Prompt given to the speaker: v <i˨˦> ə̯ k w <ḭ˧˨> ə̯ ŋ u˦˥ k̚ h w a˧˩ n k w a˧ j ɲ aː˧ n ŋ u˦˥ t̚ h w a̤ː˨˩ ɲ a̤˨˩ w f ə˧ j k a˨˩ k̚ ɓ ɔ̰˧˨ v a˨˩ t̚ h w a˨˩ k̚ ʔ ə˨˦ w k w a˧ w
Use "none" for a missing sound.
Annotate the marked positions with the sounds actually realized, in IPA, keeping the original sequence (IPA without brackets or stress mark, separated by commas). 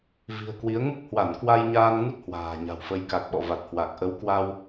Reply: i̤˨˩, i˨˦